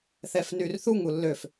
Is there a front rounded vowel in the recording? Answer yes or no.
yes